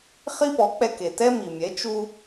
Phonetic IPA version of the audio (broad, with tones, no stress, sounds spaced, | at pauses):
χ i˥ p ɔ˩˥ k͡p ɛ˧ k e˩ t ɛ˥ m i˩ mʲ ɛ˩˥ t͡ʃ u˧